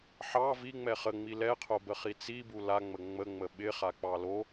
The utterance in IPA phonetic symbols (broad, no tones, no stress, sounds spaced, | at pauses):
ħ ɑ v i ŋ͡m ɛ χ ə ŋ͡m i l ɛ qʰ o b ə χ i t͡s i b u l a ŋ͡m ə ŋ͡m ə ŋ͡m ə ɓ ɪ χ a k͡p ɑ l o